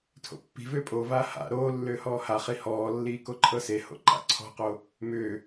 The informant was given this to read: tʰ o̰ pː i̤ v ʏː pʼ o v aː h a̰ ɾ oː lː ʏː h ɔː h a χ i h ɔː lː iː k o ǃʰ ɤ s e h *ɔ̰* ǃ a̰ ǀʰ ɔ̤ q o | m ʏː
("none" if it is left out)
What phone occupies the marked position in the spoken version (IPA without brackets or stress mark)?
o̰